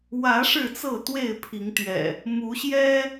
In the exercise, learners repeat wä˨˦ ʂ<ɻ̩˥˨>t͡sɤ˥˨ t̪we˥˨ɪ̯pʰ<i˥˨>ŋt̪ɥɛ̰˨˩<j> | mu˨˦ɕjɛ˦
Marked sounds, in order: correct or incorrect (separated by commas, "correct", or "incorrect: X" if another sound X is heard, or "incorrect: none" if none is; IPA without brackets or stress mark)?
correct, incorrect: i˨˦, incorrect: none